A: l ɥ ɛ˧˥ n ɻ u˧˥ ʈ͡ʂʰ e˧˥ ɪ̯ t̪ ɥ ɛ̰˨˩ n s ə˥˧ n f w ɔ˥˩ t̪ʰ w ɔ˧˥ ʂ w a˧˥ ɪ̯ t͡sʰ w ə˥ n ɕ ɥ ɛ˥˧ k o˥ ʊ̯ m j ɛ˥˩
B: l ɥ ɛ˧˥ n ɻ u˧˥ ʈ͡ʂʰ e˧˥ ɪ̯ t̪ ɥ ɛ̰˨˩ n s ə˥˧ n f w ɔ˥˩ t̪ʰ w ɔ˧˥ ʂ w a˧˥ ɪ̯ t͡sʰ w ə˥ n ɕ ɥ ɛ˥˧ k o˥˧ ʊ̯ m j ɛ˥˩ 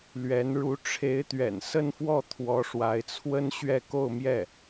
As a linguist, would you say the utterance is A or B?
B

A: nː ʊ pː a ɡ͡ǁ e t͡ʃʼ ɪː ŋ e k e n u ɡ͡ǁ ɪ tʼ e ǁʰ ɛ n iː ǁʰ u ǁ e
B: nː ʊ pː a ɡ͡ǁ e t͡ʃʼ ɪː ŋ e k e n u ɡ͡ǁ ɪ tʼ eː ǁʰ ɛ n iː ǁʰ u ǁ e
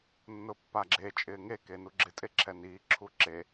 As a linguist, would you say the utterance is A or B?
A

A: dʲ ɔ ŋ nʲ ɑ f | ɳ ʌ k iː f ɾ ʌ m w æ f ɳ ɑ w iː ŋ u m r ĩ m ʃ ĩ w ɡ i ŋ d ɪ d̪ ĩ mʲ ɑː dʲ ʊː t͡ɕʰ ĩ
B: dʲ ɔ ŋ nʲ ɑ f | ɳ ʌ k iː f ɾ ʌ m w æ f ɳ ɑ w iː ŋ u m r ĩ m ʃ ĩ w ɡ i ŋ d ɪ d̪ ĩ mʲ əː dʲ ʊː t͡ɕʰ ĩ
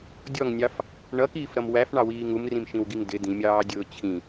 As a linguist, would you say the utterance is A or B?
A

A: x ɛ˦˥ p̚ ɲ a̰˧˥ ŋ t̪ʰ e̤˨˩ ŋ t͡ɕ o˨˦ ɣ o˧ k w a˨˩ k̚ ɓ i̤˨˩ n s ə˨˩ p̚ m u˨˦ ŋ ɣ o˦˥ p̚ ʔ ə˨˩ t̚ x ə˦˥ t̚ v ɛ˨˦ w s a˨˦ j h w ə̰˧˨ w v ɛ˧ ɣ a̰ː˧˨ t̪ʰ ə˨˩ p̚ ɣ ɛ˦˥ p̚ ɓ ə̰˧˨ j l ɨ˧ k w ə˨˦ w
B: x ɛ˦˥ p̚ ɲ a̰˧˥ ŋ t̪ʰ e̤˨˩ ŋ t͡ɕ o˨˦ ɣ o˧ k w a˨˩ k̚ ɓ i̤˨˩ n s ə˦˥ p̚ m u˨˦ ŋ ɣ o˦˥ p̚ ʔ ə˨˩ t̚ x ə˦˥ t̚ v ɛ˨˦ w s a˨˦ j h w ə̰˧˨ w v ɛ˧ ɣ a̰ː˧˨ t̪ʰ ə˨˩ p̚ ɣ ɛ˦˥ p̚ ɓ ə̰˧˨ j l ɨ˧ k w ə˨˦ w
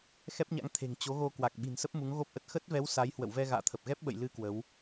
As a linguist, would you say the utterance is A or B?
B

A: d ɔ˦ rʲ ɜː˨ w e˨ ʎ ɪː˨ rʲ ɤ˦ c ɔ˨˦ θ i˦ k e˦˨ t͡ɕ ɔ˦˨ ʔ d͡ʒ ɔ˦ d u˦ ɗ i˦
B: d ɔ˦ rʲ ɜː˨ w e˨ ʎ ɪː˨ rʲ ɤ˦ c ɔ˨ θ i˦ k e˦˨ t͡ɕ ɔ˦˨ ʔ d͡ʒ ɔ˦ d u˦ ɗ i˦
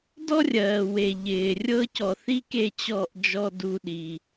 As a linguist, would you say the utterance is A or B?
B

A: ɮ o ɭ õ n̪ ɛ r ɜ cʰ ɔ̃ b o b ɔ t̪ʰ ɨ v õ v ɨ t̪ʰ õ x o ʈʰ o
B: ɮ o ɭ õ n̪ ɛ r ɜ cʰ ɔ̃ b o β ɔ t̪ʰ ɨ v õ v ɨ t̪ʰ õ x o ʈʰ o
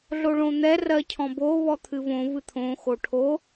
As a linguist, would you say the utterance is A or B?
B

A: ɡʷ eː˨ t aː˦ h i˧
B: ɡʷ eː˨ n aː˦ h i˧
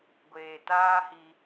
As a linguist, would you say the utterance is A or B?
A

